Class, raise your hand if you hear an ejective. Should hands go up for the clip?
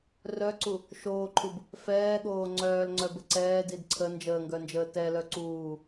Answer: no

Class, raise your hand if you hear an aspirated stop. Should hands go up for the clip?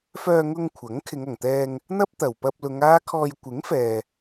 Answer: yes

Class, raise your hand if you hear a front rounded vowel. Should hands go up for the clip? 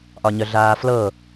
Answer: yes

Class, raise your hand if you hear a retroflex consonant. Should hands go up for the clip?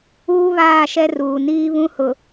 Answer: no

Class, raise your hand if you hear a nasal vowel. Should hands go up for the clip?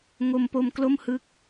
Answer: no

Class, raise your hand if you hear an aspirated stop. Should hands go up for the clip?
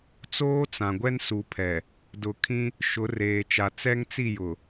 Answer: yes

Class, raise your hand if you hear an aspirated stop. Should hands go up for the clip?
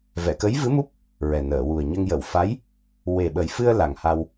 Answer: no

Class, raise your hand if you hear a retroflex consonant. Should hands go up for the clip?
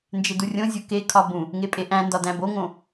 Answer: no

